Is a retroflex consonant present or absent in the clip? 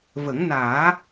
absent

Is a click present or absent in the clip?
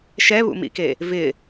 absent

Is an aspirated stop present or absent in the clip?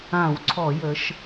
present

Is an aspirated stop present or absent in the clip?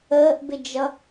absent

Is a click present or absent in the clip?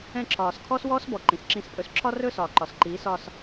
present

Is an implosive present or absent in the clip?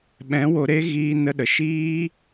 present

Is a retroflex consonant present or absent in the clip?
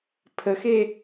absent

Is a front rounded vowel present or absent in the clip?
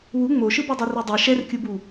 absent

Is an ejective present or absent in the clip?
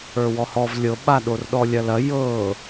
absent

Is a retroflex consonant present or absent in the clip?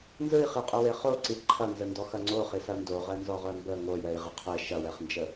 absent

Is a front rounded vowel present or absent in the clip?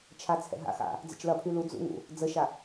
present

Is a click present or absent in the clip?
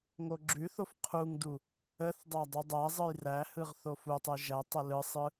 present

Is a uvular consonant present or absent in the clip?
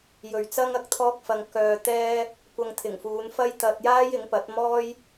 absent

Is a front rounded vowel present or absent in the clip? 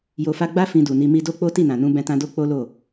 absent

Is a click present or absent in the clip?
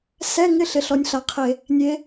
absent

